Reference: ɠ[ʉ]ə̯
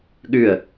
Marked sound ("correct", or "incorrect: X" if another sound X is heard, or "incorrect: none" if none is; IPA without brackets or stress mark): correct